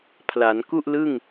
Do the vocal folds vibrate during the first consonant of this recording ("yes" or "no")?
no